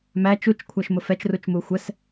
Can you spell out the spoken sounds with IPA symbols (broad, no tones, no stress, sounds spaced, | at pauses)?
m æ t͡ʃ u t͡ʃ kʷʰ æ ʃ m ʊ f ɛ t͡ʃ r u t͡ʃ m u xʷ ɛ s